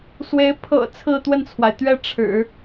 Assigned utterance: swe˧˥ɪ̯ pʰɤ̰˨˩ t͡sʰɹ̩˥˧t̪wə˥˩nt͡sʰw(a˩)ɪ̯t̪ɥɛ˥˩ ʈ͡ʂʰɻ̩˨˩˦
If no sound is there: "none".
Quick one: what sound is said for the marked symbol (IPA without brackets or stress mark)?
a˩